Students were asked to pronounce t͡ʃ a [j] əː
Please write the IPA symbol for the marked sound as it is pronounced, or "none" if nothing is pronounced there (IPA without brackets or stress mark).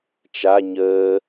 ɲ